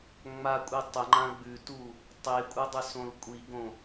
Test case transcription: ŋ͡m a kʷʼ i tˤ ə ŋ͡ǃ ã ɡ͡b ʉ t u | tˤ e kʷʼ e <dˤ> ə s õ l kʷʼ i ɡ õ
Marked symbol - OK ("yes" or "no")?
yes